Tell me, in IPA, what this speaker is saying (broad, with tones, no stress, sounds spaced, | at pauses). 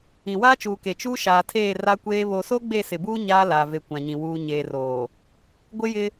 ĩ˨ w aː˦ t͡ʃ uː˨ k e˨ t͡ʃ uː˦ ʃ aː˨ tʰ eː˦˨ r a˦ kʷ eː˦ β o˨ s o˦ ɡ͡b e˦˨ s ɪ˨ b uː˦ ɲ aː˦ l aː˨ v e˨ kʷ ã˨ ɲ ĩ˨ w uː˨ ɲ eː˨ r oː˨ | ɡʷ ɪ˦ j ɪ˦